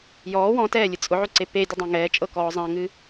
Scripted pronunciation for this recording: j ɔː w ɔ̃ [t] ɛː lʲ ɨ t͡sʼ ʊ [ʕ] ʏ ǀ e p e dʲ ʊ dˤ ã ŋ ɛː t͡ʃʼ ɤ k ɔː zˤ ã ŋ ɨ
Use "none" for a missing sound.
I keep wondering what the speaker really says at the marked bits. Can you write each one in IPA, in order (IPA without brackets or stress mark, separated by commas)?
t, ʕ